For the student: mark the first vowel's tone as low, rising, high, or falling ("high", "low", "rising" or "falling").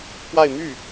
falling